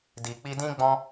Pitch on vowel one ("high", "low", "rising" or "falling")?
low